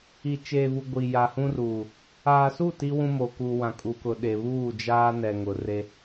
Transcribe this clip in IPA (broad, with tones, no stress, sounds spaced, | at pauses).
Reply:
i˨ t͡ʃ eː˨ v u˨ ɡʷ i˨ j a˨ h ũ˦ r uː˨ | aː˨ s u˦˨ t i˦ w ũ˦ m o˨ k uː˨ w ã˨ kʼ u˨ k ʊ˨ ɗ e˨ β uː˦˨ d͡ʒ aː˦ n ɛ˨ ŋ ʊ˨ r e˦